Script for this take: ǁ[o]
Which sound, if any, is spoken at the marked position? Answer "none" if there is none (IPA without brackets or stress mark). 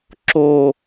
o